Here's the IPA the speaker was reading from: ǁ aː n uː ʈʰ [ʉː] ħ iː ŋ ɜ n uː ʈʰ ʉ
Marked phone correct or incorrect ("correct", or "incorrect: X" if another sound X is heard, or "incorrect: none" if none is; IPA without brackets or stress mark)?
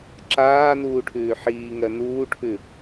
correct